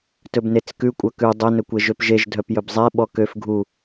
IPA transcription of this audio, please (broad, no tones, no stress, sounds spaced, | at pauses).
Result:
t ɵ b n e t͡s k ʉ kʷʼ œ k ʉ dˤ ɛ n ɵ kʷ e ʒ ø p ʒ e ʒ dʱ œ p j ɵ b zˤ ɛ ɓ ɔ k ø f ɡʱ u